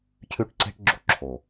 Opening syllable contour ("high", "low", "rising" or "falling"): high